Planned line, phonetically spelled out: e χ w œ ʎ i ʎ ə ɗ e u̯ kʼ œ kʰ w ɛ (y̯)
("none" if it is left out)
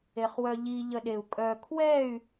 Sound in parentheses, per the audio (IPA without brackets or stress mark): y̯